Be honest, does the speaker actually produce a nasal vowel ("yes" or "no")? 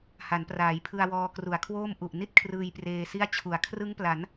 no